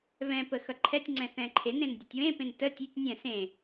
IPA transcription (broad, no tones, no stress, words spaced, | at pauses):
βɛ̃pə xʌǃʰɛtʲŋ͡ǀɛ̃ θɛ̃ǃʰenẽn dʲʌtʲwẽpẽn tə tʲʉtʲ nʲɛ̃ sẽ